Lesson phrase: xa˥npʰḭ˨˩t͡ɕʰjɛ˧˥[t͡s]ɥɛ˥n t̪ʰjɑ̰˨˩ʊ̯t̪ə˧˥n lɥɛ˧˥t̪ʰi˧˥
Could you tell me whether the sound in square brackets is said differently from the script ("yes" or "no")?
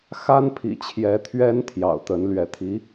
yes